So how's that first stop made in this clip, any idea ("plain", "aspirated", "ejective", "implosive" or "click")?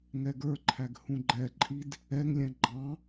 plain